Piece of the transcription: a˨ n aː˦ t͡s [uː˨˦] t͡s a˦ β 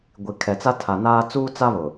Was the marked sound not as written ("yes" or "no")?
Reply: yes